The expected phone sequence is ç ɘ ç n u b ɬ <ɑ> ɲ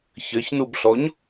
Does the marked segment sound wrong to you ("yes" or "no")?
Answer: yes